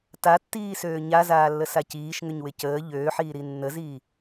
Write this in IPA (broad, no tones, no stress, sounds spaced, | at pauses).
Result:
t a tː iː s øː ɲ a z aː lː ə s a c iː ʃ ŋ ʏ ɲ w ɪ c əː ʎ øː ħ iː ɾ i nː ə z iː